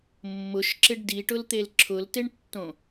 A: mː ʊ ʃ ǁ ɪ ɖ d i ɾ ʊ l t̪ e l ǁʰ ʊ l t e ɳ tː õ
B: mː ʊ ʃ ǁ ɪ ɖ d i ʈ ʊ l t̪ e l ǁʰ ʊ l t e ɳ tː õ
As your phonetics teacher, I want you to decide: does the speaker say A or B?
B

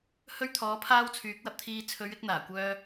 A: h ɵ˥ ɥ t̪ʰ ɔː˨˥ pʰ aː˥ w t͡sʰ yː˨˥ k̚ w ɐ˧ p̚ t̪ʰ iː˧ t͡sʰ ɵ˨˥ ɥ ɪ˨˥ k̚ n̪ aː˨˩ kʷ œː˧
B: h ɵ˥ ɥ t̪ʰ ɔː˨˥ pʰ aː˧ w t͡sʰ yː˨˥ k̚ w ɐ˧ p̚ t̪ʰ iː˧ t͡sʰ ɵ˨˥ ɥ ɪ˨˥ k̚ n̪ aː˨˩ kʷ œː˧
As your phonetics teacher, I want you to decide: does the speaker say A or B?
A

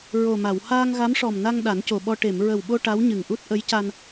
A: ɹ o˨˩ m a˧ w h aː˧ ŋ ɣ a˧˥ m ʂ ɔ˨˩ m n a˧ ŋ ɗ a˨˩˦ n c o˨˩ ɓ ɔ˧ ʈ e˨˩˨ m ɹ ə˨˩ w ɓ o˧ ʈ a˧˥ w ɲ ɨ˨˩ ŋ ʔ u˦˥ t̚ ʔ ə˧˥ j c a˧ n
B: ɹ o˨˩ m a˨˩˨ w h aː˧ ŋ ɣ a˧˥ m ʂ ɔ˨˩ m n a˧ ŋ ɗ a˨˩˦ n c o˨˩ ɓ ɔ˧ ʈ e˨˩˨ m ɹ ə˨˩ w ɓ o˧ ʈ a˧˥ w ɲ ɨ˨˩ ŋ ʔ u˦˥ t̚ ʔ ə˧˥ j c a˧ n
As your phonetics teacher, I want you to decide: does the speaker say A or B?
B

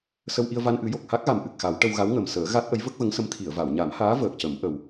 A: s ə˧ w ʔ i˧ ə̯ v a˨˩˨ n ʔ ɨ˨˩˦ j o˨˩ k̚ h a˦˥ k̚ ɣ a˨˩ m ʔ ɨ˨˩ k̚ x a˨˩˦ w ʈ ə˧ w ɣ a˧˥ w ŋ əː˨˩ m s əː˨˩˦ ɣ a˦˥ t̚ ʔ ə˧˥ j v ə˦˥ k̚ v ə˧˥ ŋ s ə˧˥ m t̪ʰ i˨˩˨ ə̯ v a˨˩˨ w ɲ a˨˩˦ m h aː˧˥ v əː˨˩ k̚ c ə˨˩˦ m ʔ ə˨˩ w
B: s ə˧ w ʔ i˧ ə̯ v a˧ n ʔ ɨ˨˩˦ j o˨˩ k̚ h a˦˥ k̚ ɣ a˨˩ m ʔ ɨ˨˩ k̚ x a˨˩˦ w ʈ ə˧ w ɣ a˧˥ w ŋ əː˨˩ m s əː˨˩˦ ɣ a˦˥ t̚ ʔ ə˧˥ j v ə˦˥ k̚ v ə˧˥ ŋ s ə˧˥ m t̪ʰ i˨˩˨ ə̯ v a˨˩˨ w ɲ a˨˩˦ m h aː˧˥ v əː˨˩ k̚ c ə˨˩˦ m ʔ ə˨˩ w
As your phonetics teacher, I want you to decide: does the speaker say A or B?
B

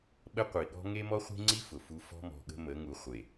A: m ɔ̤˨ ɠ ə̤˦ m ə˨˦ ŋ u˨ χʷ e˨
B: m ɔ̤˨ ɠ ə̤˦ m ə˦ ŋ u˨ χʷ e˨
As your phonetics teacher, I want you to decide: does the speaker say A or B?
A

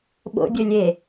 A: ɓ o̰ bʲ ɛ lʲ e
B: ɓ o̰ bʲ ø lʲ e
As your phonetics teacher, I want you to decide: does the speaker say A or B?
B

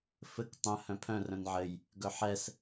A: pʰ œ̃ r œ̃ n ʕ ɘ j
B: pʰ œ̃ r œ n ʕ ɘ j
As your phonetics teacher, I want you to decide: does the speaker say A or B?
A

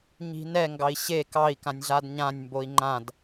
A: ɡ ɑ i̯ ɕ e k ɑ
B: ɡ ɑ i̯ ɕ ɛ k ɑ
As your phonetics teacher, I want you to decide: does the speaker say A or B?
A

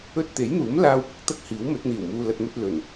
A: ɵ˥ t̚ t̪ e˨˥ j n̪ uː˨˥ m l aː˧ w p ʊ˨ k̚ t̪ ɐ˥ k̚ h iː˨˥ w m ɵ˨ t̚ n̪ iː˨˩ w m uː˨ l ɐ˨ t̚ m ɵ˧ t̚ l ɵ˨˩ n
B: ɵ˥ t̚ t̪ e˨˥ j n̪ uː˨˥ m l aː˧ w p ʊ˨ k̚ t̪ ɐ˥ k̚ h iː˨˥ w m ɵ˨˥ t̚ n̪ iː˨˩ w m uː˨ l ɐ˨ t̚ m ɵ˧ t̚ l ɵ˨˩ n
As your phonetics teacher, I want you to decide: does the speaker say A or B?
B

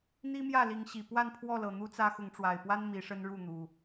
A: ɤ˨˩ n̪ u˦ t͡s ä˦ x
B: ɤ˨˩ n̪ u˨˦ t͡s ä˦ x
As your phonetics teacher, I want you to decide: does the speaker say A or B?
A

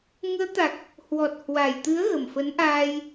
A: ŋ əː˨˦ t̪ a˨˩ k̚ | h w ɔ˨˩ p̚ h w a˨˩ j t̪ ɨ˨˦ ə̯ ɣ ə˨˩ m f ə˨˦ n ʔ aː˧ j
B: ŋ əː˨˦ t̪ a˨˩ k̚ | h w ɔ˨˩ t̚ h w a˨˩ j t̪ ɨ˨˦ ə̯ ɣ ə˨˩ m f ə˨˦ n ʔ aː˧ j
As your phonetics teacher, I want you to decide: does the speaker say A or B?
B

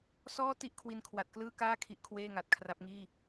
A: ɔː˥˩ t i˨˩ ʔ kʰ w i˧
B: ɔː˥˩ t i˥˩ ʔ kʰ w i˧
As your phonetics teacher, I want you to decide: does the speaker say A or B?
B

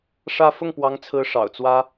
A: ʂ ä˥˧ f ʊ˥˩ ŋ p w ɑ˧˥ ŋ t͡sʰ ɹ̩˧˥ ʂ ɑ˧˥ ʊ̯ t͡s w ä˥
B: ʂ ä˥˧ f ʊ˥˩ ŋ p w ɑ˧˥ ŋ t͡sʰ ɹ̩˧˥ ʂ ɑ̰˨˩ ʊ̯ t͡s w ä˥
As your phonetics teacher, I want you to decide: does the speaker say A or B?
B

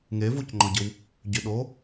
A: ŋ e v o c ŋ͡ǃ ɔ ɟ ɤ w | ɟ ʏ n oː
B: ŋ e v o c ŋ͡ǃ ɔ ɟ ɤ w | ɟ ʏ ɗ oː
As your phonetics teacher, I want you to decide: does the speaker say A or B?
B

